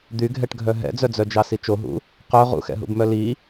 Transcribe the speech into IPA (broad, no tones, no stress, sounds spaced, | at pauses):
d̪ y ɡʱ ɛ ʈ ɡʱ œ ɦ ɛ̰ d͡z œ d͡z œ d͡ʒ ɑ s i t͡ʃ o ɦ ṵ | q œ ʁ ṵ x ɛ̰ ɦ ṵ b m œ l i